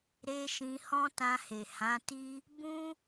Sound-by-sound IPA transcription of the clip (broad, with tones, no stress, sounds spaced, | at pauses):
ɾ e˧ ʃ ĩ˧ h ɔ̃˦ t ã˧ h e˨ h ã˨˦ t i˦ | b ũ˦